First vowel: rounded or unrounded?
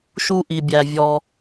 rounded